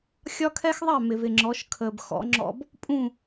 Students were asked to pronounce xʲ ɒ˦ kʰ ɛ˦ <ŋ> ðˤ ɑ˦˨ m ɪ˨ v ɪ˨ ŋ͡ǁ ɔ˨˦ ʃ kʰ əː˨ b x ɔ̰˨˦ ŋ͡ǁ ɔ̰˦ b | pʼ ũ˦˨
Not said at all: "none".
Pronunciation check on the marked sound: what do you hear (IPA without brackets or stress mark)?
x